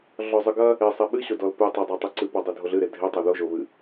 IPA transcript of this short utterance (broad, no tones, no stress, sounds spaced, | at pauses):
ɮ ɔ zˤ ɨ ɡ ɐ | e sˤ e ɓ ɨ ɕ o d ɔ l p ɨ tˤ ɐ dˤ o tˤ ɨ ǀ ɨ p ɔ dˤ e dʱ o ɮ ɨ ɾ e dʱ e tˤ o ð o ʒ o β ɨ